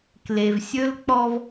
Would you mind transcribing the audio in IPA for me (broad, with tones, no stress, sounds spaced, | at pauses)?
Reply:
k l e˨ v sʲ ɵ˦ l k͡p ɔ˦ v